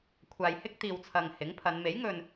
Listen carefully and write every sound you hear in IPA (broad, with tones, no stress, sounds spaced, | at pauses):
kʷʰ aː˨ j h ɪ˥ k̚ t̪ iː˨ w t͡sʰ ɐ˨ ŋ h ɪ˨˥ ŋ pʰ ɐ˨˧ n m e˨˥ j ŋ ɵ˨ n